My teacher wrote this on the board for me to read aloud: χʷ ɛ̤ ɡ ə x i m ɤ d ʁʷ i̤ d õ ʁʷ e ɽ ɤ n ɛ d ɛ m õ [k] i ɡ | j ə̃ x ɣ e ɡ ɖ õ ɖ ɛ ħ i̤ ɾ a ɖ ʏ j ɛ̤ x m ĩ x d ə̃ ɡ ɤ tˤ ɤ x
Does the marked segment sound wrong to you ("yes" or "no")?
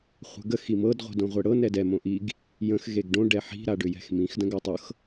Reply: yes